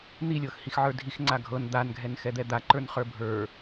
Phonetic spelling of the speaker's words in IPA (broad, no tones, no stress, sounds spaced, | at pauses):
n̪ i lʲ ɤ x h i x ʕ ə˞ dʱ i x ŋ͡ǀ a ɡʱ ɤ n d̪ a n ɡʱ ɛ n x ɛ d̪ ɛ d̪ a ǃ ə˞ n χ ə˞ bʱ ə˞